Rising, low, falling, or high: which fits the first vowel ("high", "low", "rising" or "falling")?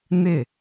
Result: falling